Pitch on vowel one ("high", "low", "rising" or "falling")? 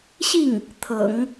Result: falling